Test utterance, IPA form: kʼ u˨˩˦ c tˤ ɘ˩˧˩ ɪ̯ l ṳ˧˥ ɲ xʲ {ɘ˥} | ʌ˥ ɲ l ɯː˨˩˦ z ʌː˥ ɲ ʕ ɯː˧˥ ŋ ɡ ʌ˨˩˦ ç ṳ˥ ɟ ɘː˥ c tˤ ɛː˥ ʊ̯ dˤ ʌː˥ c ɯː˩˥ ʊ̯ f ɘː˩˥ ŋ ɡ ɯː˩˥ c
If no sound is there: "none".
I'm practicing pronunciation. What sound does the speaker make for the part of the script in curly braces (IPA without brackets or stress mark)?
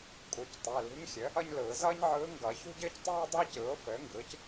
ɘ˩˥